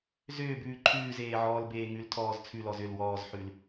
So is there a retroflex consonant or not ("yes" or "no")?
no